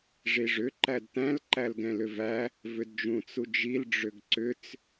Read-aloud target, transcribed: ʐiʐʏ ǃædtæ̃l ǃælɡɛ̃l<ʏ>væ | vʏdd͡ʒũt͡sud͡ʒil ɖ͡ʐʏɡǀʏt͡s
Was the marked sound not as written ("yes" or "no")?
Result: no